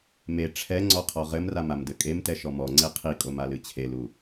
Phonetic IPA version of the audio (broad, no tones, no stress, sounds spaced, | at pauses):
m e ʈ͡ʂʰ ɛ ŋ͡ǀ ɔ qʰ ɔ ʁ ɘ m r a m a m d ɘ kʼ e m t ɛ ʃ ɔ m ɔ ŋ͡ǀ e qʰ i kʼ o m a l ɨ t͡ɕʰ e l u